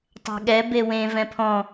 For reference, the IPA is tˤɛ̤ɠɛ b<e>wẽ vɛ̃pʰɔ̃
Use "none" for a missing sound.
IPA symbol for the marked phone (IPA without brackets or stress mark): e